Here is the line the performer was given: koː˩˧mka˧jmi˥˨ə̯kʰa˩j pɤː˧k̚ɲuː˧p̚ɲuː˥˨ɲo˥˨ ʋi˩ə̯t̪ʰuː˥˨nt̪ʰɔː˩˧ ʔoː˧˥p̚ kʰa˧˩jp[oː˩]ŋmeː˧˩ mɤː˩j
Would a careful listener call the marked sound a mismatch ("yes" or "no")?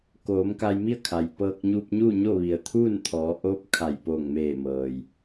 yes